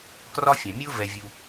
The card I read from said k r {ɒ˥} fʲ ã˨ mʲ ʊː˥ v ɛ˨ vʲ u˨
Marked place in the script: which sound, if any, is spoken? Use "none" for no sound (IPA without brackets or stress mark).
ɒ˥